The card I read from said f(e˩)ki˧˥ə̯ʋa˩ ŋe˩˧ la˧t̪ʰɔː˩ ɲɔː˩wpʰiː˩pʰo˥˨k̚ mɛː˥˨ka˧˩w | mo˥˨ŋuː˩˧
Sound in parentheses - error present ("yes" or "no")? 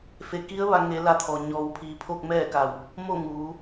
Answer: no